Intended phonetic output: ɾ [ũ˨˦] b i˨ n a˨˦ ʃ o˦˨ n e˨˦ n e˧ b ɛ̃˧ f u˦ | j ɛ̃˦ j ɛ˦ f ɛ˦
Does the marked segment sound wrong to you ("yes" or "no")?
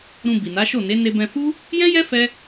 yes